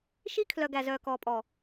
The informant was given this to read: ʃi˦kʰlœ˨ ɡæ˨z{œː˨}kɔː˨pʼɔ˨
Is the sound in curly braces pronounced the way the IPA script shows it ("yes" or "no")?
yes